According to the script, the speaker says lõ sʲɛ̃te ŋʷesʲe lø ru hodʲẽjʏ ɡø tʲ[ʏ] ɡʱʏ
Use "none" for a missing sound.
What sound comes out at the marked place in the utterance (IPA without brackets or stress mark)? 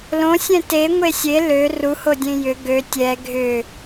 ɛ